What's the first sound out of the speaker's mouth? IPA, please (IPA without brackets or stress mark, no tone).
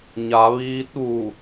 ɲ